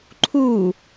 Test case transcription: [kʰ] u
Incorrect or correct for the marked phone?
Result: incorrect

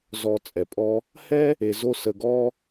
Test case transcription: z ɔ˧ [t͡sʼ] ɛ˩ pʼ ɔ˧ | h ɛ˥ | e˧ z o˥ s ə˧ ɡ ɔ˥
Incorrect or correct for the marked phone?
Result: correct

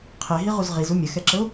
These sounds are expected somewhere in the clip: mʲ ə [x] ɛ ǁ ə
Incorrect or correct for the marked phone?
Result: correct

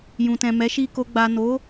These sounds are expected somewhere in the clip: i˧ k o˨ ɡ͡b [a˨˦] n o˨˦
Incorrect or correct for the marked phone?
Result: incorrect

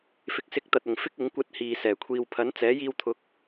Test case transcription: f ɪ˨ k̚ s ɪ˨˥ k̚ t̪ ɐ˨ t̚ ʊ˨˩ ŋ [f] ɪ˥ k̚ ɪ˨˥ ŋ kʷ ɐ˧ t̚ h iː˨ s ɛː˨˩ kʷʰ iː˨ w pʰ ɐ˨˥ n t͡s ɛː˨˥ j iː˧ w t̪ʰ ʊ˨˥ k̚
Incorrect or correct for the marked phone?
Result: correct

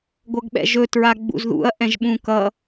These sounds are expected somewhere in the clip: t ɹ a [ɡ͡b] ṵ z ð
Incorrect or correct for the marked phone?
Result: correct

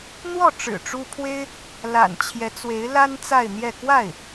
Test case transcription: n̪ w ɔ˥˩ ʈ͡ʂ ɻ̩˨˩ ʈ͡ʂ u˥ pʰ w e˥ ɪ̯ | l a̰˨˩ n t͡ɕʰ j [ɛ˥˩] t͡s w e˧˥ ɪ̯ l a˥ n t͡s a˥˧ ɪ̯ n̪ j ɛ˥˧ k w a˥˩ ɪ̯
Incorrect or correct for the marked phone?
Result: incorrect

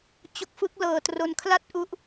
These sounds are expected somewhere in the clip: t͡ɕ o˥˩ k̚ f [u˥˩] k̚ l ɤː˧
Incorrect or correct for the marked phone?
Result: incorrect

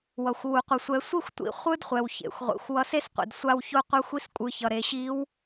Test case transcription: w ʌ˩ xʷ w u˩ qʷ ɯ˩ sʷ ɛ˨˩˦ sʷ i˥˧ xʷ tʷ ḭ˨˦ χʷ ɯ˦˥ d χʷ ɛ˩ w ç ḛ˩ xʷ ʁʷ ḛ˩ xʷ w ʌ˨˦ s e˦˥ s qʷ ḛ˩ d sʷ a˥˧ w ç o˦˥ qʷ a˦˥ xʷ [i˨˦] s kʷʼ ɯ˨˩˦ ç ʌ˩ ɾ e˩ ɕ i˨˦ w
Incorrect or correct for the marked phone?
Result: incorrect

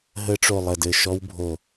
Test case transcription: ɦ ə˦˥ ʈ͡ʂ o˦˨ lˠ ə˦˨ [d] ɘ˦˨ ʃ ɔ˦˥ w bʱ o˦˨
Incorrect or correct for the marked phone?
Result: correct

